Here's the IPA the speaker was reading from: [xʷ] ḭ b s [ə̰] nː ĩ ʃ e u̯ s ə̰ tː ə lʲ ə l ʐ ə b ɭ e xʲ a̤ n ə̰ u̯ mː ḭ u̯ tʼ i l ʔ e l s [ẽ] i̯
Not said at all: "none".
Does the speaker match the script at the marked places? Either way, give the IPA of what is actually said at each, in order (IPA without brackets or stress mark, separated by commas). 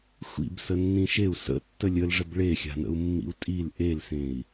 xʷ, ə, ẽ